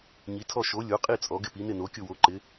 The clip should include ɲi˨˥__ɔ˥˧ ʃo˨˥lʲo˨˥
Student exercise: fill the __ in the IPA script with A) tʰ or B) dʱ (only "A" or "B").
A